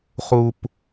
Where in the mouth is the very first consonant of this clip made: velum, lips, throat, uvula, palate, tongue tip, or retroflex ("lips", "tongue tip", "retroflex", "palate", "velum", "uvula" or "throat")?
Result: uvula